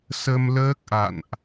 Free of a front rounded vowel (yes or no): yes